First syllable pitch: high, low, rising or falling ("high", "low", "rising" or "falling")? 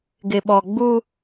low